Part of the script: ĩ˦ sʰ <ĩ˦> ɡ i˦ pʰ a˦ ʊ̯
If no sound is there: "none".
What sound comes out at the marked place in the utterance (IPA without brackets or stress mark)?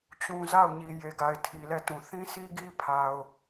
i˦